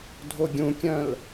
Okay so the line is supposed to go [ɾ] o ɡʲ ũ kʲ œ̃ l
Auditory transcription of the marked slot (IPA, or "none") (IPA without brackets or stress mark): dʱ